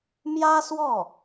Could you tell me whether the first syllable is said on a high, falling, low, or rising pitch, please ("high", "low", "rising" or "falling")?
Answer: high